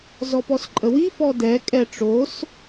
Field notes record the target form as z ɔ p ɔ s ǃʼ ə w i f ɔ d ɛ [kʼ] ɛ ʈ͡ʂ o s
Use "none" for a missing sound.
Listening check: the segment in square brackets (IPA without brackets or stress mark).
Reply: kʼ